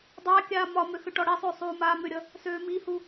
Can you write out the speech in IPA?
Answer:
dˤa kʲaːmɒmø xʏʈɔɽisˤø sˤuːmaːmʏɾʲʌ | søːmihu

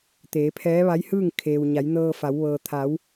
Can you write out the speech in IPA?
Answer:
t̪eː˩˧pʰɛː˧˥ʋa˧˥jhɯː˥˨ŋ kʰeː˩w ɲa˩˧j nɤː˧fa˩˧w ʋɤː˩t̪ʰa˩˧w

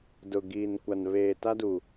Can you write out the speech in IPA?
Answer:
dʊ˨ ɡiː˨nkʷa˨n βeː˨ta˦du˨

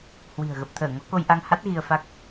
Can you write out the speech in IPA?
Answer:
hwi̤˨˩ə̯ ɣə˨˩p̚t̪ʰəː˧˩ŋɔ˨˦ ko˧jʔa˧ŋha˦˥t̚ ɣi˧ə̯fa˦˥k̚

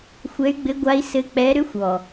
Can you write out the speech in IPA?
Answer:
xʷɛ˧˥y̯ɡ͡bɘ˧˥ɡʷa˧˥i̯ sɘ˧˥k͡pɛ˧˥ ɾʏ˧˥xʷ ɔ˨˩

